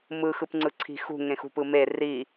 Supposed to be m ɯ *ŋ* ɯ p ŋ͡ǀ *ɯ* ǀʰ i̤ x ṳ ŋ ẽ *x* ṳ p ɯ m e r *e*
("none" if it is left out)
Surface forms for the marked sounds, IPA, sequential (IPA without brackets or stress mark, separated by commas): x, ɯ, x, i